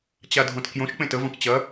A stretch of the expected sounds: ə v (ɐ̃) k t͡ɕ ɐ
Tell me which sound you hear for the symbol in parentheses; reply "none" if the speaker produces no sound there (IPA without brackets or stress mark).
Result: ɐ̃